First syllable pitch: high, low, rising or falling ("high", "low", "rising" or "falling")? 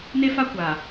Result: high